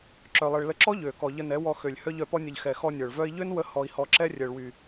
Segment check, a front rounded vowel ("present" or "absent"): present